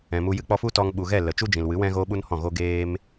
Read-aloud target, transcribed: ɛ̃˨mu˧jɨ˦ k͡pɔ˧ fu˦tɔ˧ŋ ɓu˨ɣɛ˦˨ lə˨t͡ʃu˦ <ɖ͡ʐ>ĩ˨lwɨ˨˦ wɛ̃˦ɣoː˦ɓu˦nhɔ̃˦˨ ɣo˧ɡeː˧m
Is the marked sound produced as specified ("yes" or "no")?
no